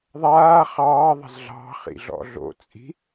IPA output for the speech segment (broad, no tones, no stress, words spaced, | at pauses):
ðˤaː χɑːðˤə̤z ɮɑ̤χḭ ɮɔ̰ɮo̰t͡sʼi̤